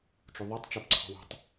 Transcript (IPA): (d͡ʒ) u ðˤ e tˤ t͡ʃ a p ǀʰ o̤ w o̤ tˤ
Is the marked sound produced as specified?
no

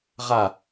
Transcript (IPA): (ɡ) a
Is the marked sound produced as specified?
no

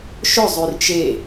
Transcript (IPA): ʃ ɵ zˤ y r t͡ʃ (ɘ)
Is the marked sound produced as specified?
no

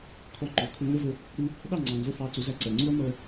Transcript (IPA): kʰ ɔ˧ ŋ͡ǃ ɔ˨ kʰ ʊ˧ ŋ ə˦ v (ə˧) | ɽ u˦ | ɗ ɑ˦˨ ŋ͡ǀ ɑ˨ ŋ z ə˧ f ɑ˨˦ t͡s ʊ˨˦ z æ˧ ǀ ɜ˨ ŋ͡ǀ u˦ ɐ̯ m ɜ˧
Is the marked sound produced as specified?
yes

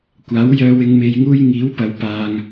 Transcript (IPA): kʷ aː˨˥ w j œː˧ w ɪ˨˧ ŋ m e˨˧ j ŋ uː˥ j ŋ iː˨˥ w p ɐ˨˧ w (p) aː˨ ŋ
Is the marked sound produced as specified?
yes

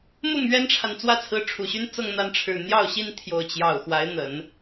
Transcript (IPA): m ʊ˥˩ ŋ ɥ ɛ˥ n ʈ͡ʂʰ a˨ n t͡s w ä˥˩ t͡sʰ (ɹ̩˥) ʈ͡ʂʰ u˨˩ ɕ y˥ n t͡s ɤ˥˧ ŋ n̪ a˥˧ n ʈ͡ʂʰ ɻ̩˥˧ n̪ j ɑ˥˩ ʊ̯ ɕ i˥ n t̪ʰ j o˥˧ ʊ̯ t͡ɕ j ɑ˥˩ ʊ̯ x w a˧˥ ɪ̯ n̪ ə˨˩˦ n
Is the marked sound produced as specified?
no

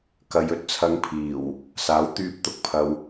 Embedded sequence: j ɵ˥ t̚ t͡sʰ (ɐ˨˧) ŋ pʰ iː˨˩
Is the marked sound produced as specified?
yes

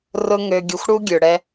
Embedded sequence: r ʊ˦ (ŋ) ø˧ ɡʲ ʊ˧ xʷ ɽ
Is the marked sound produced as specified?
yes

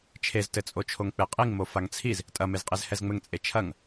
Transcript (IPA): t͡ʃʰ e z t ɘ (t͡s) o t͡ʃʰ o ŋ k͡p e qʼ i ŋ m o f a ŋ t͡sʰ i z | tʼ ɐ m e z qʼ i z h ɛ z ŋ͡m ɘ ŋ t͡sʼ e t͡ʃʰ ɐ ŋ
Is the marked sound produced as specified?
no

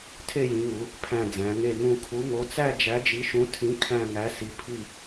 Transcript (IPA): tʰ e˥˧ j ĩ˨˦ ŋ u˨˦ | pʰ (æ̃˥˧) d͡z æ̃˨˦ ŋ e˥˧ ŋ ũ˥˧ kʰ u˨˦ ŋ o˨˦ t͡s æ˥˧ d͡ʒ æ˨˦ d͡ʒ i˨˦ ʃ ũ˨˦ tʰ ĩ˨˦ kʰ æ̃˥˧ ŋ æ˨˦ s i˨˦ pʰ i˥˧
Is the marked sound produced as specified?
yes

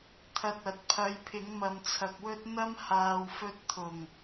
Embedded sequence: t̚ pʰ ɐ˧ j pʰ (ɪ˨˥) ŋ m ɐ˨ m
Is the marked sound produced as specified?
yes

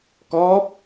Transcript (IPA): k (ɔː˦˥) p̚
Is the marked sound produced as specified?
yes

